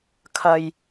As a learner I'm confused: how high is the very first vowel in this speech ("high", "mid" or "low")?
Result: low